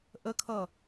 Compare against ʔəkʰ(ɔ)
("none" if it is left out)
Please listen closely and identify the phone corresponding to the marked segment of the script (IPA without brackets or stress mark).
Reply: ʌ